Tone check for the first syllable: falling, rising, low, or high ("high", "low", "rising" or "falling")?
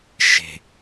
low